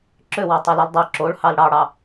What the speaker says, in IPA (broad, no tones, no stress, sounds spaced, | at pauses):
ǁ ø w ɑ tˤ œ l e l dˤ ø ǁ o ɭ h ɑ l ɽ ɑ ɽ ɑ